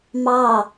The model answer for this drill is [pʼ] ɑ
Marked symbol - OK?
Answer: no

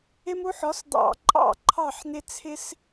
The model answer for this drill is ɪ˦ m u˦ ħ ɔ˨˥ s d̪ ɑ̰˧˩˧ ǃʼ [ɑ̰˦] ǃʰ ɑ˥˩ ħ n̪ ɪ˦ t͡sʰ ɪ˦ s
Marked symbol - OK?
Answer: no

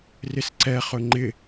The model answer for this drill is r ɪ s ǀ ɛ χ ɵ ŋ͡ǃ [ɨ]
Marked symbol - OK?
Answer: no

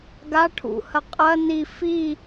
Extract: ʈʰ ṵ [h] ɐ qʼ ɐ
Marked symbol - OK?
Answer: yes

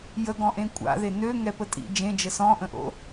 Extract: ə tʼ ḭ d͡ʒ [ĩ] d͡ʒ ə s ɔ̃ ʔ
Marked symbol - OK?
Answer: no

